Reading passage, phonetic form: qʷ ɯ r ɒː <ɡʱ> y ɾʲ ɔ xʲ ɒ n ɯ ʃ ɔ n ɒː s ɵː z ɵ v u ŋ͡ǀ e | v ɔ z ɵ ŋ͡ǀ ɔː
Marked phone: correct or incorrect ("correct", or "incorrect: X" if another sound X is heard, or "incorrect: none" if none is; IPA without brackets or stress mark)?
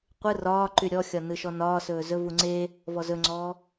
incorrect: ǃ